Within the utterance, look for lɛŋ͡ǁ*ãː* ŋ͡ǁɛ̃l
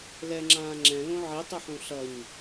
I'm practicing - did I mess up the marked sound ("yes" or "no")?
no